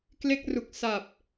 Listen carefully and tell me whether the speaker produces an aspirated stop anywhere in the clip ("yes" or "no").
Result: no